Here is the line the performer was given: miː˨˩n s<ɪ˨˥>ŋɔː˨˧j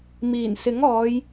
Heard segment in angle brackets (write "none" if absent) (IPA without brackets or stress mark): ɪ˨˥